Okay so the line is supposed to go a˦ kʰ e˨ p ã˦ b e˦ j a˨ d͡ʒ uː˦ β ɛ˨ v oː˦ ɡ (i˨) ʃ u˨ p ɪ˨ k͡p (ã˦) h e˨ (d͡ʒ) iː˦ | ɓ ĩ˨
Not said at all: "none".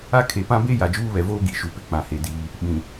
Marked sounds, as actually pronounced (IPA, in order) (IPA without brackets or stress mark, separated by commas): i˨, ã˨, d